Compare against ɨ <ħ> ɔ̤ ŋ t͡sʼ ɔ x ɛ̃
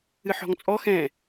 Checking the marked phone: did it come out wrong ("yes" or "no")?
no